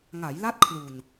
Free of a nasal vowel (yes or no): yes